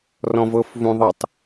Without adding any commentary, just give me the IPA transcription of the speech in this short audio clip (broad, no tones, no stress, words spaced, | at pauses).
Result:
rɔ̃vɤf vũðˤɤtˤ